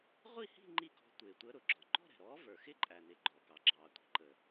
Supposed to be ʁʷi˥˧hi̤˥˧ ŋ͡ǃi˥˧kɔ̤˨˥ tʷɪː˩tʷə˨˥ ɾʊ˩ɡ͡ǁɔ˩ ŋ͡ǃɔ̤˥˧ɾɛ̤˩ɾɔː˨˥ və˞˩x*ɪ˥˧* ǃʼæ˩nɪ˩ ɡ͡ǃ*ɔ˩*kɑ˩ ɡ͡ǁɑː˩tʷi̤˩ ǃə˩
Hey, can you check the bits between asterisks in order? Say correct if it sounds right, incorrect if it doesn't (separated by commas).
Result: correct, correct